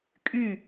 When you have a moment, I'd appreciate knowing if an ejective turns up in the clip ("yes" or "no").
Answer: yes